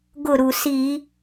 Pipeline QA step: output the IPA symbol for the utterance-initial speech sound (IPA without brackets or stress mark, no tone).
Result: ɡ